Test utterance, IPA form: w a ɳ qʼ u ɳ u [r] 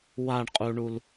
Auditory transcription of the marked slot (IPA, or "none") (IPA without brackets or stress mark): l